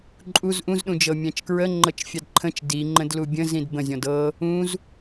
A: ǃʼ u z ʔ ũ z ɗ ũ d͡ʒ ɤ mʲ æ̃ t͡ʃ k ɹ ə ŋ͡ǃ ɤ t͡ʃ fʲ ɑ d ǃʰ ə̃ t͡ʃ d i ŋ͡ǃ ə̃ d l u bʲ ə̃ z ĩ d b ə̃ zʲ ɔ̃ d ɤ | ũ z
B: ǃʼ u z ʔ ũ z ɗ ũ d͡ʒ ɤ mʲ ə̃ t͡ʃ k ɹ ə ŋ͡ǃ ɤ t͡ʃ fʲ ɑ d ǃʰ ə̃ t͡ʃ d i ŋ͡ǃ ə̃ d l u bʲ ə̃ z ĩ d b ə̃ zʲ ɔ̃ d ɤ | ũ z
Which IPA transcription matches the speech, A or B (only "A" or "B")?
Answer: A